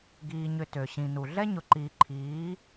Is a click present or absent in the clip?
present